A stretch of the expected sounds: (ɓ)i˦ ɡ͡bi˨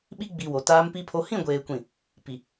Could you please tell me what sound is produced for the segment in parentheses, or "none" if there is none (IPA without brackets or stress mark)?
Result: ɓ